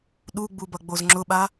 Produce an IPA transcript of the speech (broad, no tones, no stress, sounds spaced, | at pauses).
ɗ u ɡ͡b u b ʌ ɡ͡b o z ŋ͡ǁ ʊ ɓ a